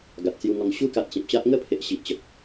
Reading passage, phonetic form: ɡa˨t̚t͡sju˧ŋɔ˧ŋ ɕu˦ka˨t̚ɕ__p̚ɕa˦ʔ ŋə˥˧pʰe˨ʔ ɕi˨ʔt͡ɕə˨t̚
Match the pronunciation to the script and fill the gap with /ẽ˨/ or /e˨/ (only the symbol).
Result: ẽ˨